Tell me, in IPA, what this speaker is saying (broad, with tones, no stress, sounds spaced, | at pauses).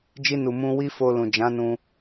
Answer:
d͡ʒ i˧ n u˨ m ũ˧ w i˦ f o˧ l ũ˨ d͡ʒ ã˨˦ n ũ˧